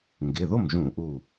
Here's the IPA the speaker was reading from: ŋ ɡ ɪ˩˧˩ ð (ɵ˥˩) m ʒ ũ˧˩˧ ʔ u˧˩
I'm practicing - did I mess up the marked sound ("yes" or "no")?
yes